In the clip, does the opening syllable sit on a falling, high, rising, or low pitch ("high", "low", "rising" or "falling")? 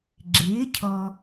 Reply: rising